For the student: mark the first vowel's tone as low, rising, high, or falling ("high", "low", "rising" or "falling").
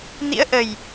rising